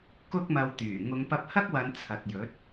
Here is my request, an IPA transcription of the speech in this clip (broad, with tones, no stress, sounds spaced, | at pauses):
k ʊ˥ k̚ m ɐ˧ w t̪ yː˨˩ ŋ ʊ˨˧ ŋ p ɐ˧ p̚ h ɐ˥ k̚ w ɐ˨˧ n t͡sʰ ɐ˨ t̚ j ɵ˨˥ t̚